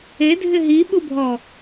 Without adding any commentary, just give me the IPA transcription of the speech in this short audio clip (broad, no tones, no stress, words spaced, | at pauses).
edʱɪ ɦiɓubʱɔ